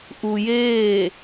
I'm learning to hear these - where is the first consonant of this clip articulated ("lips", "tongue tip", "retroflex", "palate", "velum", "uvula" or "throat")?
throat